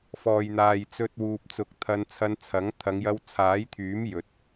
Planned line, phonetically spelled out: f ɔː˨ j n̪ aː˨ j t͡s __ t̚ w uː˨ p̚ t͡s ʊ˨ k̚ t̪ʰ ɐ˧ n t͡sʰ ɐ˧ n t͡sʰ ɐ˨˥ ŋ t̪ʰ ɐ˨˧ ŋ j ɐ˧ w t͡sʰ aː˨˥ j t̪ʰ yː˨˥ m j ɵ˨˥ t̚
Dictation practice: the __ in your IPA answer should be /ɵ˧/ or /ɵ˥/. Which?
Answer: ɵ˧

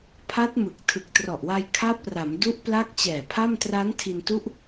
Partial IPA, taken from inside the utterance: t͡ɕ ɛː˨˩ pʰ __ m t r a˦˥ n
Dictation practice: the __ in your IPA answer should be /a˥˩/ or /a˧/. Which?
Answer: a˥˩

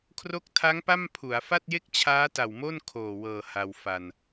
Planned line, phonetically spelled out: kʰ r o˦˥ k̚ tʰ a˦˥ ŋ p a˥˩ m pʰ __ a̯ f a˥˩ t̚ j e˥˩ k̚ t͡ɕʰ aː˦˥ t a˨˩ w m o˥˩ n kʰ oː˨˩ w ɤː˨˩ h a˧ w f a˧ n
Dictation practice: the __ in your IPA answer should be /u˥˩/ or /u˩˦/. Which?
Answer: u˩˦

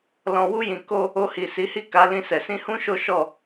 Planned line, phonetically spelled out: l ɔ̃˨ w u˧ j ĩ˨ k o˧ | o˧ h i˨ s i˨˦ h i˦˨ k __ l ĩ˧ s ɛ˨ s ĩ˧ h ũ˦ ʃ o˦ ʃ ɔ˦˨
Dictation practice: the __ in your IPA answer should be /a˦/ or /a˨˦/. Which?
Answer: a˨˦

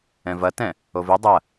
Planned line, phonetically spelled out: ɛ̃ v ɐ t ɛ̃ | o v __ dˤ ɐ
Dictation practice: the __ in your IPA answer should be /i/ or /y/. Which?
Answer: i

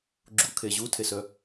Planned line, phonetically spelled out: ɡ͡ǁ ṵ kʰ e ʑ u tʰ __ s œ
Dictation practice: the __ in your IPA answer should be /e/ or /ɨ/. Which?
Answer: e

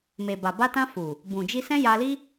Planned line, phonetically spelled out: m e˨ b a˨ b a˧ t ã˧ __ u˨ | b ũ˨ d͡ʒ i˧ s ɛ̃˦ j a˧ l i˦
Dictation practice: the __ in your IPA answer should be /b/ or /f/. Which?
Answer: f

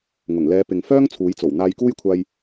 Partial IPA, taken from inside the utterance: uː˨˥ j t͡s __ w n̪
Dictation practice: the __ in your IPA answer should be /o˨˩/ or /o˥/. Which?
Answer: o˨˩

